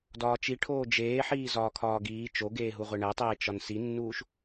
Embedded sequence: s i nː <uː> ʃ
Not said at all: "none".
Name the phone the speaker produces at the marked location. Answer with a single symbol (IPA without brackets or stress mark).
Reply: uː